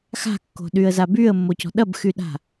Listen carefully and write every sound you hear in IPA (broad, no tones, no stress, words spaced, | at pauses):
xa̤kːo̤ɗyə̯za byə̯mːocɔ̤ ɗɐbxyɗa̤